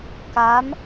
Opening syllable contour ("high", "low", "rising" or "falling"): rising